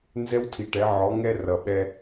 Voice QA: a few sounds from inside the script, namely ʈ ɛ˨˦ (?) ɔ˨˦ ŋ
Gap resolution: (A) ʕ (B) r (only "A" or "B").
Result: A